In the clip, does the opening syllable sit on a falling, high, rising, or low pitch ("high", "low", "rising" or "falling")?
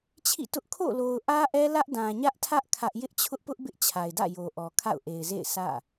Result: falling